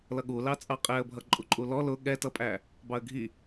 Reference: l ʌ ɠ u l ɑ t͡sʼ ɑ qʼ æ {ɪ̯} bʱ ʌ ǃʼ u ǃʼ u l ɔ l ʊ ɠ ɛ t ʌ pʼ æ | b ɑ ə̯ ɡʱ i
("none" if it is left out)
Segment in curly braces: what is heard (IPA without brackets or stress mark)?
ə̯